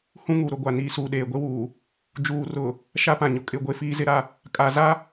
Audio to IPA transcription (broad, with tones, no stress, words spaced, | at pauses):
hũ˦ŋu˨ ɾʊ˨ɡʷa˨ niː˨suː˨ ɗeː˨ɡʷe˦wuː˨ | d͡ʒuː˨ rʊ˨ | ʃa˦pã˨ɲʊ˨ kʼɪ˦˨ɡʷe˦fiː˦ zɪ˦ɾa˦ | kʼa˨za˦